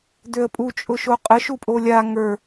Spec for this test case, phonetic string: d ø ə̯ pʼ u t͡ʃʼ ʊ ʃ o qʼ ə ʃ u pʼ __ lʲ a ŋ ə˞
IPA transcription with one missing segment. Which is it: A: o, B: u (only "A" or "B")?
A